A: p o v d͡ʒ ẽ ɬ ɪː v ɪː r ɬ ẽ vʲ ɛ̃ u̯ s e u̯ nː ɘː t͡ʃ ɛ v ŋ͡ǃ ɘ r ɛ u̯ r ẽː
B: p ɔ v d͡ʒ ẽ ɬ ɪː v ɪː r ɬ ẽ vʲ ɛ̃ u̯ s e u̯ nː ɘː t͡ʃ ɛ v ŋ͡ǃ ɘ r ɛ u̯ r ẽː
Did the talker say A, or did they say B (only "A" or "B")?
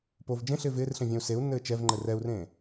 A